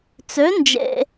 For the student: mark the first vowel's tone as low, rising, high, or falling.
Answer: rising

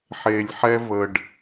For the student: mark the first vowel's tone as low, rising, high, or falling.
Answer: low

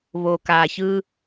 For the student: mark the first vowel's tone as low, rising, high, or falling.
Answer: low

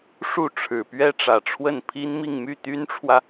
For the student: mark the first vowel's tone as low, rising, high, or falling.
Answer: falling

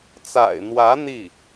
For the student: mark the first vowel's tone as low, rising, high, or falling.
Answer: low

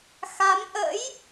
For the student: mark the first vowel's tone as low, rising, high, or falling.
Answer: rising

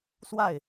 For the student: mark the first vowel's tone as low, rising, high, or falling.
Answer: falling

